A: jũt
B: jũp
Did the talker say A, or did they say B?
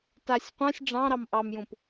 B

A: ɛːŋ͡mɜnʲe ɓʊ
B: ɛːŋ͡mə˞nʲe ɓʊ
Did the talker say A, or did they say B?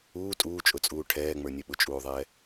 B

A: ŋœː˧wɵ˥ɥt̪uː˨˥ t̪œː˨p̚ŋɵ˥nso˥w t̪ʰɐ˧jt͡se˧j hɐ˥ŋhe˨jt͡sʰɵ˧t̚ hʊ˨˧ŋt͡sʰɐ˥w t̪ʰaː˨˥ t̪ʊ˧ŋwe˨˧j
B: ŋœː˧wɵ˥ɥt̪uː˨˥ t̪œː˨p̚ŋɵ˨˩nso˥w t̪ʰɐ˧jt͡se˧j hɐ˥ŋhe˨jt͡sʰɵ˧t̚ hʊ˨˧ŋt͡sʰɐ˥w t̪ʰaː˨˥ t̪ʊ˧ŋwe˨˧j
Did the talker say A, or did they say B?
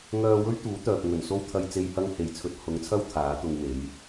B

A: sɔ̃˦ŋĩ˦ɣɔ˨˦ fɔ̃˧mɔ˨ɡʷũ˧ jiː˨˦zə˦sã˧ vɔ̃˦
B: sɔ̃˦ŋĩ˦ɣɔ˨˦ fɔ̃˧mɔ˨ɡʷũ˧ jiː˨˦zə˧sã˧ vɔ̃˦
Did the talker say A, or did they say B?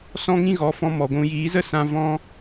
A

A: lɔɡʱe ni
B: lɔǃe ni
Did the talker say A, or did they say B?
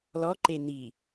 B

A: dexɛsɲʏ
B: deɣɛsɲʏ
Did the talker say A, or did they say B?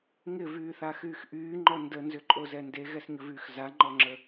B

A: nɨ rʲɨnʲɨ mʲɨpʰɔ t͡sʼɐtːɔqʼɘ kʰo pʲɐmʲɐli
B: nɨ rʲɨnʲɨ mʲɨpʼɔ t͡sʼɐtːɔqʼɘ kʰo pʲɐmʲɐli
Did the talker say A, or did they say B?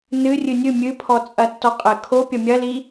A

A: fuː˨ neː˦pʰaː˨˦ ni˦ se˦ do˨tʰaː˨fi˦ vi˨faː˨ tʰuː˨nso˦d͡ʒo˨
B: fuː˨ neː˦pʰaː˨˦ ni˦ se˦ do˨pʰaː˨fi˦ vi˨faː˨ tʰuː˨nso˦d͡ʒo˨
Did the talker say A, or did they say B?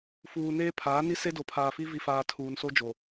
B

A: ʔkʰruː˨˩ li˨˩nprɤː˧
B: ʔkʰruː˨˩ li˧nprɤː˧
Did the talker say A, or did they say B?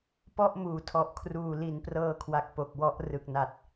A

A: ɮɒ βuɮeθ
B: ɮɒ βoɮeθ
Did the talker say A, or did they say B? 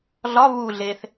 A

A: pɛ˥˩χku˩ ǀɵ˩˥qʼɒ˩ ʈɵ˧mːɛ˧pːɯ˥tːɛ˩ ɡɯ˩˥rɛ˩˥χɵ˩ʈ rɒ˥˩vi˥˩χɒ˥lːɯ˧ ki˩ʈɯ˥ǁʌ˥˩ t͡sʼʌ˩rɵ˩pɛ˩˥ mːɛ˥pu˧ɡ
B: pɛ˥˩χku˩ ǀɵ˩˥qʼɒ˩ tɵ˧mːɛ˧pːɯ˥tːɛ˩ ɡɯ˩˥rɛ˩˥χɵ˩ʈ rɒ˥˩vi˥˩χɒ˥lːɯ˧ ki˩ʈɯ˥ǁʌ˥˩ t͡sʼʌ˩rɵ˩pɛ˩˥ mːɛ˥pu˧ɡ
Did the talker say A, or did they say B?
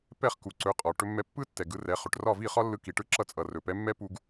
A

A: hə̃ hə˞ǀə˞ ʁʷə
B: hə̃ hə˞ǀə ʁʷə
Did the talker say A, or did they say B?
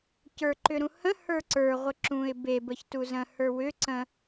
A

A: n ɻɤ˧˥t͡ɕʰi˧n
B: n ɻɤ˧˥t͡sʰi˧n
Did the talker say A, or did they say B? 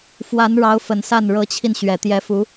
A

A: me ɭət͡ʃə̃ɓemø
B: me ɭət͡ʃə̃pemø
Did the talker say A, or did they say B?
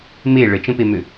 B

